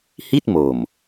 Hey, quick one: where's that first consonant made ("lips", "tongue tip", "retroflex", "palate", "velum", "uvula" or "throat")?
throat